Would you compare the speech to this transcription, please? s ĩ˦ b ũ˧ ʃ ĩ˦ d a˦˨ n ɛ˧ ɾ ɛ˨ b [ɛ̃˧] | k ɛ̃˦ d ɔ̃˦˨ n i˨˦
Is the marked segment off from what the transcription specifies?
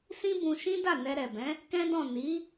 yes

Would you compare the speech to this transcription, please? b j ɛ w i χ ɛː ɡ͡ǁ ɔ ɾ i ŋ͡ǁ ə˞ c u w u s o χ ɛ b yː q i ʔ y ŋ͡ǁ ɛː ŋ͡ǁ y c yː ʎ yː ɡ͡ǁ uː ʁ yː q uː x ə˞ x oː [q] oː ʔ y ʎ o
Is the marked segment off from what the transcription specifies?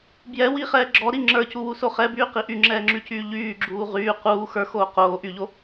no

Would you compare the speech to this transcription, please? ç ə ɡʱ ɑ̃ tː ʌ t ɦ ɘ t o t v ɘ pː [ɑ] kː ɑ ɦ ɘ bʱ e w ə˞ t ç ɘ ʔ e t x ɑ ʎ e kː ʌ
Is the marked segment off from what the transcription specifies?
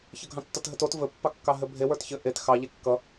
no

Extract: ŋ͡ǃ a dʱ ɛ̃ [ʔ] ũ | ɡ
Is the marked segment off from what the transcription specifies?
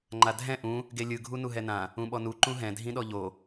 no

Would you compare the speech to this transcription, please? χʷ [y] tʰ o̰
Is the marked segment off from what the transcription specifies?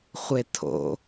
yes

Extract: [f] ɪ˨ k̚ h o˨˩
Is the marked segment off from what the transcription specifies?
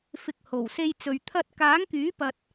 no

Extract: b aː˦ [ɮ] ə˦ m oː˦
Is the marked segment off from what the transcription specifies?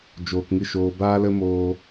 yes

